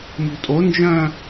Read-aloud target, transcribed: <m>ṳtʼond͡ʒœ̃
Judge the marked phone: correct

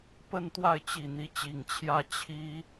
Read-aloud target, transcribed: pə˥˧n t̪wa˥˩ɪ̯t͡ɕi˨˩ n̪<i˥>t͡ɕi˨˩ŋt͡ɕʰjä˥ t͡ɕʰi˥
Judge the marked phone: incorrect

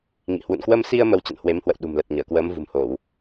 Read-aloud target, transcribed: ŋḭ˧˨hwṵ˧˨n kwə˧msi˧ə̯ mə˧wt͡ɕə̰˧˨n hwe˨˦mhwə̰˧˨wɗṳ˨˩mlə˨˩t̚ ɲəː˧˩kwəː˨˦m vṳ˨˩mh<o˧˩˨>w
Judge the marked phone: correct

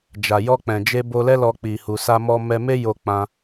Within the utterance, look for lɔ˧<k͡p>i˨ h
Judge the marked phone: correct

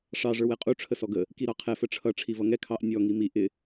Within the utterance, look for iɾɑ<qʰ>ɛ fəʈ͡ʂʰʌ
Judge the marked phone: correct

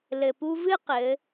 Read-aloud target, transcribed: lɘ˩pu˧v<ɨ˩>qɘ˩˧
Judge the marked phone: incorrect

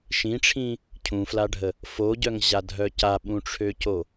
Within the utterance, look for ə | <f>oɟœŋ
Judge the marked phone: correct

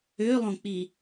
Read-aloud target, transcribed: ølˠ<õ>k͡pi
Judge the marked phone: correct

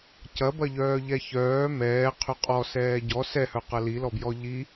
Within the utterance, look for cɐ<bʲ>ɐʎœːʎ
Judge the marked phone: incorrect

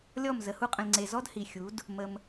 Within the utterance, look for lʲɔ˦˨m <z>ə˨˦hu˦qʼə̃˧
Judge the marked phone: correct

